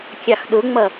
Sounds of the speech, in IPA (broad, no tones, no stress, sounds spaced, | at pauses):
kʲ ɑ x ɗ ʊ ŋ͡m ʌ